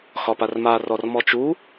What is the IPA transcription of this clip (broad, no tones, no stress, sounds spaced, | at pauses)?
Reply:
x ɒ p a r m a r ɔ r m ɔ t͡ʃ u